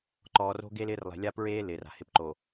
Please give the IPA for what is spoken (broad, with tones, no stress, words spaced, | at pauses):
ǃɔː˨ro̤˦ ɡeː˦lɪː˦rlˠe̤˨ lʲa˦pɹeː˦ lɪː˨ra̤˨ hɪ˦˨pǃo˨